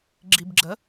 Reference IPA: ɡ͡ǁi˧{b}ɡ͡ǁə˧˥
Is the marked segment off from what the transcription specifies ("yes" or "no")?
no